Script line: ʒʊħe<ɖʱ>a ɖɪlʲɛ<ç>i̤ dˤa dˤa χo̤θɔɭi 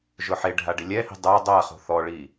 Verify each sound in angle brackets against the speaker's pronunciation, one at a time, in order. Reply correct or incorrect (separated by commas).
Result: correct, incorrect